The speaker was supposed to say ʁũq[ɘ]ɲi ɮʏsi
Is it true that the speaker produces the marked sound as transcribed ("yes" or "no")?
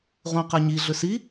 yes